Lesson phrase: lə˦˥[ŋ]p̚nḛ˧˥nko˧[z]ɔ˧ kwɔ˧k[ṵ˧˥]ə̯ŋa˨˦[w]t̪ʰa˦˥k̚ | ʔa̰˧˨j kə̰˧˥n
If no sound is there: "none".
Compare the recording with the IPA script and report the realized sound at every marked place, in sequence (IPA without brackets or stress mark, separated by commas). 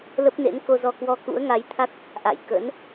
none, z, ṵ˧˥, j